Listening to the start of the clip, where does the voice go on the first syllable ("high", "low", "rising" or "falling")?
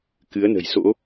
rising